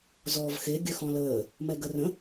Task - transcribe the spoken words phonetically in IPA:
zɔːvxe ɡʲœxɔ̃ləː | mɛɡərə̃

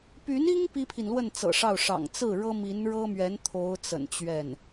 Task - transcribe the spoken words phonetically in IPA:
py˧˥ni˥ŋ pi˥pʰi˨nlwə˥˩n t͡sɤ̰˨˩ʂɑ˥˩ʊ̯ʂɑ̰˨˩ŋ t͡sɹ̩˥˩ɻɤ˥ mi˧˥nɻɤ˥mɥɛ˧˥n t̪ʰo˧˥ʊ̯t͡sə̰˨˩nt͡ɕɥɛ˥˩n

